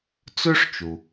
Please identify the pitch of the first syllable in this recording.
high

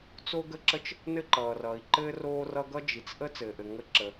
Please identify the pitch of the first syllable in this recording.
high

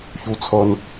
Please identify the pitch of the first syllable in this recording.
low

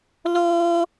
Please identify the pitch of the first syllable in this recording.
high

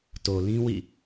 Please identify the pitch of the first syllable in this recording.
low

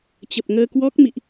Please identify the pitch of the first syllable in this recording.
low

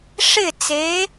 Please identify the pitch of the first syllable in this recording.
falling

